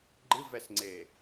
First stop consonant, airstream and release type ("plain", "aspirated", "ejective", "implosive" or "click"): click